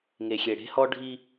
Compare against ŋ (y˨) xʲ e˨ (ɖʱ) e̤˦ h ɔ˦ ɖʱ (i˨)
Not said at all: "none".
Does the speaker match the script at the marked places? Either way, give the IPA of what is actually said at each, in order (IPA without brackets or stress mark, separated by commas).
e˨, ɽ, i˦